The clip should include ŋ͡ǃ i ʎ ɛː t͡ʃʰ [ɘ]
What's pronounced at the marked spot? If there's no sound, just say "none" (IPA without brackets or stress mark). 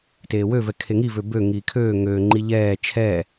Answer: ɛ